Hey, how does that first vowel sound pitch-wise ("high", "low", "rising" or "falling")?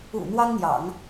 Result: low